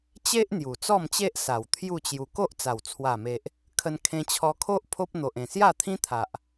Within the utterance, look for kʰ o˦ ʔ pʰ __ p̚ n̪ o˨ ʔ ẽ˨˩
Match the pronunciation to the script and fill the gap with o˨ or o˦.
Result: o˦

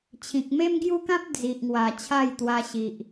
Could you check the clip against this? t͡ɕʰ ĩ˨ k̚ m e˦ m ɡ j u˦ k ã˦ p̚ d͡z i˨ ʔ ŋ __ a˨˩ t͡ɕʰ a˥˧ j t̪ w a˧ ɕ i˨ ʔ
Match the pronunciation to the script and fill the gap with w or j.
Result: w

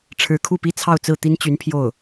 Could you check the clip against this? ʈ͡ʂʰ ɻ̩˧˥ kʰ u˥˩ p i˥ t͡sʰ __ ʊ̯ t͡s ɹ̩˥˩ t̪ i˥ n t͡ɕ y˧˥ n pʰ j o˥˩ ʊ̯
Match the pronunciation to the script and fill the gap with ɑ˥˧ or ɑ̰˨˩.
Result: ɑ˥˧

